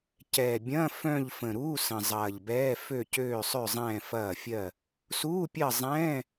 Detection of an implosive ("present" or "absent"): absent